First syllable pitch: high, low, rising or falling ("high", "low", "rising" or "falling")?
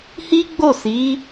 high